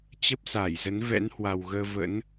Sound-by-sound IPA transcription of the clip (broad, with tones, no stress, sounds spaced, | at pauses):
t͡ɕ ə˦˥ p̚ s a˧˩ j z ə˨˦ n v ɛ̰˧˥ n h w a˨˩ w ɣ əː˧ v ə̰˧˥ n